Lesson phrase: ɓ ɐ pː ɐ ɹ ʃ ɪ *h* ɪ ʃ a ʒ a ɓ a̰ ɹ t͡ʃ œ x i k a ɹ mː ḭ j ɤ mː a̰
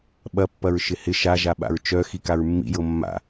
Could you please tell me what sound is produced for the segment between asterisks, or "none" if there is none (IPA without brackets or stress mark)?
h